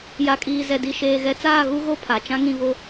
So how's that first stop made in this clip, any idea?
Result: ejective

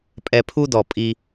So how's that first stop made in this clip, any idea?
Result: ejective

